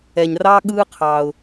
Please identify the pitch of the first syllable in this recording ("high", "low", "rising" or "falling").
low